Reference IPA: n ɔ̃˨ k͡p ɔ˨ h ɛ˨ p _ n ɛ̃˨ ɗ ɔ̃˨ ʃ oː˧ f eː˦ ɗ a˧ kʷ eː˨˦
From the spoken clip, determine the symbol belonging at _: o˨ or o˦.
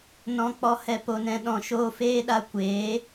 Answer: o˨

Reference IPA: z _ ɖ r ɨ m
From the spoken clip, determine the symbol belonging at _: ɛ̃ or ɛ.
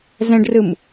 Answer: ɛ̃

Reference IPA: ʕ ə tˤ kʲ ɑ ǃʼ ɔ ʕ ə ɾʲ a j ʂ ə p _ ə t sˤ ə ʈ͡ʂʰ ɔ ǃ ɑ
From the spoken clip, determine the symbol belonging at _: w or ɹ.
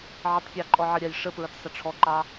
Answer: ɹ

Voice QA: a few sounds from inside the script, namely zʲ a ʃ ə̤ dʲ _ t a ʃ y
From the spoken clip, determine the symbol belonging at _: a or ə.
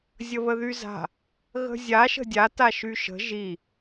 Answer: a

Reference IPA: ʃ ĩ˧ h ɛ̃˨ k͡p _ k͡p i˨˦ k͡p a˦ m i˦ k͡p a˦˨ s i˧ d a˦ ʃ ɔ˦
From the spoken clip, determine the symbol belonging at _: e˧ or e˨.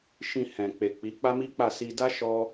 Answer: e˨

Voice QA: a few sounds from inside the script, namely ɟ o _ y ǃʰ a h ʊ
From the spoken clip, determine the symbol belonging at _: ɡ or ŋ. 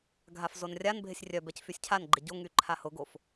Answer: ŋ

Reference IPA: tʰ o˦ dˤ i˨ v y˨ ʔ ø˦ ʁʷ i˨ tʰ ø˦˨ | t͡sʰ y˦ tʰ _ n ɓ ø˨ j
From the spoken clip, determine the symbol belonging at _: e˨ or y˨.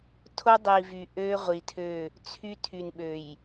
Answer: y˨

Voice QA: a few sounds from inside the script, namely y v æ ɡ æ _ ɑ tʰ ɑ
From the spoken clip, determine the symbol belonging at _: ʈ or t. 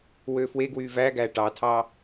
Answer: ʈ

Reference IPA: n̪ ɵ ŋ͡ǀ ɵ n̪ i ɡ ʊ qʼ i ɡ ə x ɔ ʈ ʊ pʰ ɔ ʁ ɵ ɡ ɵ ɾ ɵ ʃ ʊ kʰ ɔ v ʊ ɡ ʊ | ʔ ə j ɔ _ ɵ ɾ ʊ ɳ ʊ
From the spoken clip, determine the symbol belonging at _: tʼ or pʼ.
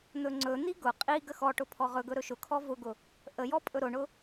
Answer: pʼ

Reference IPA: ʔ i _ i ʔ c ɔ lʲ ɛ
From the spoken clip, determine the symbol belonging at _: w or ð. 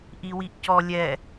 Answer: w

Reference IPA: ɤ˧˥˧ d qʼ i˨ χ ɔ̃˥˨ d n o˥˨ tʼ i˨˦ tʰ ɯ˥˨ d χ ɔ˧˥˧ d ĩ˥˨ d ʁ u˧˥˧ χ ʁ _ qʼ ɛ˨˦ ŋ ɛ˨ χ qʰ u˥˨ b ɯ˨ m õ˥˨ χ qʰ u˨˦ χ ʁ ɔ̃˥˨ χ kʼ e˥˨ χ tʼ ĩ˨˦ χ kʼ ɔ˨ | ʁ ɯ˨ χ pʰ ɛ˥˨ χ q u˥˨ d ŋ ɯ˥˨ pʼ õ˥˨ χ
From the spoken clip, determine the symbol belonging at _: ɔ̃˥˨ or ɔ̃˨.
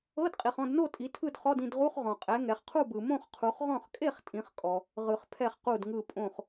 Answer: ɔ̃˨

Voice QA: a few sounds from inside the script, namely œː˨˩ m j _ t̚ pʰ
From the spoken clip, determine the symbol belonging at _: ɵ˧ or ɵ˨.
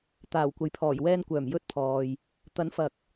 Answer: ɵ˧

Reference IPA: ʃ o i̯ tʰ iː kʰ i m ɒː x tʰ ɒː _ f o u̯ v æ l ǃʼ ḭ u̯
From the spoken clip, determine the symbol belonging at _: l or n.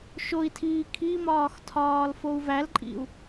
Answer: l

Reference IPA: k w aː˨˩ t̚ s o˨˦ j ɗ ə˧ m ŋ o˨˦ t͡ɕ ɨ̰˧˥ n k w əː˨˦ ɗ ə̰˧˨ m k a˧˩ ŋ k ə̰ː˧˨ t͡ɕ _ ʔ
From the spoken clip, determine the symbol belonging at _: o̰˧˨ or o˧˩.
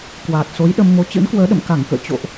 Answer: o̰˧˨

